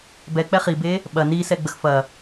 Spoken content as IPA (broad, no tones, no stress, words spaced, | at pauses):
bɛk͡pɛ χibe | ɓɐ nisɛɡ͡bəx fɐ